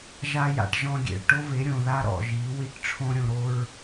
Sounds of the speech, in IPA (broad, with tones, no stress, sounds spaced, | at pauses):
ʒ a˧ j a̰˨ ʈ ʒ ɔ̃˧ ɡʲ ḛ˨ ɭ ʈ o˦ v e˨˦ ɾʲ õ˨ ð a˦ ɾ ɔ̰˨ ʒ i˨˦ w i˦ ʈ ʈ͡ʂʰ õ˦ ɾʲ õ˧ ɾ o˦ ɹ